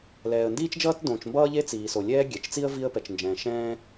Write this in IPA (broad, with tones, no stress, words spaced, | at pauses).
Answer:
lɛː˩ə̯ndiː˥t͡ʃd͡ʒʌː˥t dõː˩t͡ʃmbʌː˥ʎe˥ t͡siː˩so˩ lʲɛː˥ ɡʲɛ˩t͡ʃt͡si˥ə̯ vi˥ə̯pɛ˩t͡ʃnd͡ʒɛ̃ː˩ ʃɛ̃ː˥